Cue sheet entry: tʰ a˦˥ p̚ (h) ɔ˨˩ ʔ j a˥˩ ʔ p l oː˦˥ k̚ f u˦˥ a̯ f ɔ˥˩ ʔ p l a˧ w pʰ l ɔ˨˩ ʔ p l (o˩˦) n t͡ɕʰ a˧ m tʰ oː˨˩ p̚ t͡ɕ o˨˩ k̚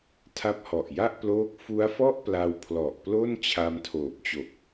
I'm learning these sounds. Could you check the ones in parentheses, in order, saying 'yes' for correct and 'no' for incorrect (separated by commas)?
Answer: yes, no